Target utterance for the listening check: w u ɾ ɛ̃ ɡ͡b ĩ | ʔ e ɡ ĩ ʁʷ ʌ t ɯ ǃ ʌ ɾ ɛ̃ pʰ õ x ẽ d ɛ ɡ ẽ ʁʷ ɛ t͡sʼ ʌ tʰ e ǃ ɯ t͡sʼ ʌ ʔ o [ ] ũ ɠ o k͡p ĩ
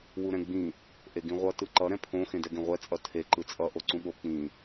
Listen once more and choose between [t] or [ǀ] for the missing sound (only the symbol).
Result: ǀ